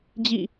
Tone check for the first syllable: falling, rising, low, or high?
falling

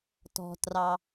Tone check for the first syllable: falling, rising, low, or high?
low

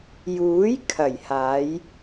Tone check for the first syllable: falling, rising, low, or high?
rising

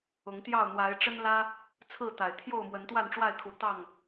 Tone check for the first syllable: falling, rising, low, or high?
rising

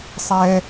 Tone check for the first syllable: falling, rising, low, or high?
high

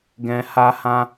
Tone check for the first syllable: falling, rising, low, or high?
high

